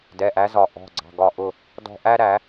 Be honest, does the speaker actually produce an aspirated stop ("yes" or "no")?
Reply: no